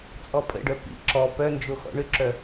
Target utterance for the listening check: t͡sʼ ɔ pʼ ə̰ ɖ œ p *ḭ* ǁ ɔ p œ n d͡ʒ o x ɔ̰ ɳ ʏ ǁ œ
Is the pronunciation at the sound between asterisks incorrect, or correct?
correct